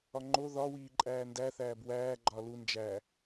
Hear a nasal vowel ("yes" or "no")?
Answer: no